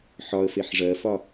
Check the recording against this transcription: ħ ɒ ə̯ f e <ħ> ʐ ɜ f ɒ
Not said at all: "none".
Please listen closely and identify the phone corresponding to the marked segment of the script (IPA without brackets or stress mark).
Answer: ħ